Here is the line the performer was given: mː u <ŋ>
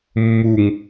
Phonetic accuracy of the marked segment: correct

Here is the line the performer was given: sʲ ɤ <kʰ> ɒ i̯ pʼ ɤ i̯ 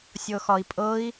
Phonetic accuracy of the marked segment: incorrect: x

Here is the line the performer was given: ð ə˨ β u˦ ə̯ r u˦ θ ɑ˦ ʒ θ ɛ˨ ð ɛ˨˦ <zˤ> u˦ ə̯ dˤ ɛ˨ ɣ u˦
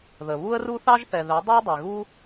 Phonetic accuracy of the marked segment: incorrect: dˤ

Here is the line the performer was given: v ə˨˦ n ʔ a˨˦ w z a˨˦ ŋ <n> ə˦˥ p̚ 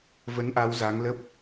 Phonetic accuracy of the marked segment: incorrect: l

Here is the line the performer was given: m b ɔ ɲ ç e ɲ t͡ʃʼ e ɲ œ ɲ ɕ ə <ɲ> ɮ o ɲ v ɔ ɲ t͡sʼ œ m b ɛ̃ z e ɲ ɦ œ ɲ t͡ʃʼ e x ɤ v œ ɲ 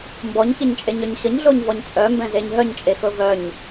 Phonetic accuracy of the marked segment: correct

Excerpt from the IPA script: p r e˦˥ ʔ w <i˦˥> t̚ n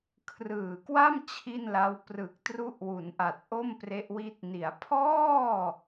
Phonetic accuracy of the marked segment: correct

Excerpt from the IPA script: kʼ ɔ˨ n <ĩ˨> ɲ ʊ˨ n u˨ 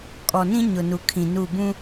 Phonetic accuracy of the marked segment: incorrect: ĩ˦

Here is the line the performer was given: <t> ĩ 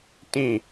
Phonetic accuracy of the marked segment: correct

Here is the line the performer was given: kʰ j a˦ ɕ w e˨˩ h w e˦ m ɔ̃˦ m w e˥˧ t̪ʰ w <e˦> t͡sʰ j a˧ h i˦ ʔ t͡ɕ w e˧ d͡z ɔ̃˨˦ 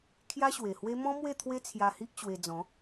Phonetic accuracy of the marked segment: correct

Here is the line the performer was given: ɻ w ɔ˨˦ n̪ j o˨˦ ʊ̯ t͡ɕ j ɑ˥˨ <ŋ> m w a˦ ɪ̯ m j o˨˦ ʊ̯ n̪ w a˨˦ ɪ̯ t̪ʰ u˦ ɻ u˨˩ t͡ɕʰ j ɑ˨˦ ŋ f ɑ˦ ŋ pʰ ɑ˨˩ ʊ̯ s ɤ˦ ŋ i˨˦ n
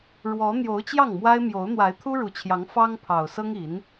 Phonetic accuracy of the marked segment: correct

